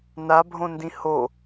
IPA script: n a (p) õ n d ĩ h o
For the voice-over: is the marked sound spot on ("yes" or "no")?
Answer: no